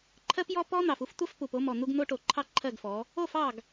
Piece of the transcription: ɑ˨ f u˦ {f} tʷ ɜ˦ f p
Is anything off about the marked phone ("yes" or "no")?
no